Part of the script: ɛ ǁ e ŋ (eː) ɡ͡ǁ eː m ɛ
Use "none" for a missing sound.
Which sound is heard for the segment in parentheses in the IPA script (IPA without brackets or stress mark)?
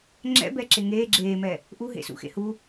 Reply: eː